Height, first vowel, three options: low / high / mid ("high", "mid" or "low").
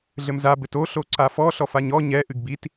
mid